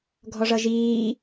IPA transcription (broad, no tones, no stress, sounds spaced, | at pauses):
ɡʱ ɔ ʐ ʌ ʒ iː